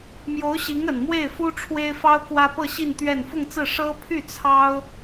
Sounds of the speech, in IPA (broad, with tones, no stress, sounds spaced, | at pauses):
m j o˧˥ ʊ̯ ɕ i˧˥ ŋ ə˨˩ n m w e˥˩ ɪ̯ f u˥ ʈ͡ʂʰ w e˥ ɪ̯ f ɑ˥ ʊ̯ k w ä˥ p ɤ˥˧ ɕ i˥˧ n t̪ ɥ ɛ˥˧ n f ʊ˥˧ ŋ t͡s ɹ̩˥˩ ʂ ɤ˥ pʰ y˥˩ t͡sʰ ɑ˥ ʊ̯